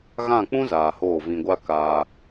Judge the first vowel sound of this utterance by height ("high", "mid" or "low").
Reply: low